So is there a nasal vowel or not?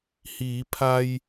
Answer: no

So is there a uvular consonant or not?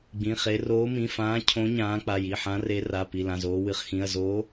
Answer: yes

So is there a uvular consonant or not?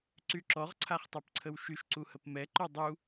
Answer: yes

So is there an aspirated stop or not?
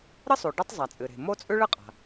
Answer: no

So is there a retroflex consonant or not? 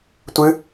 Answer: no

